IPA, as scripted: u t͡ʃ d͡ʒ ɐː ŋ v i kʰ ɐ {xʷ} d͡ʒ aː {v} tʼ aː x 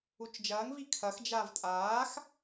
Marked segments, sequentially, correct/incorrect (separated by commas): incorrect, correct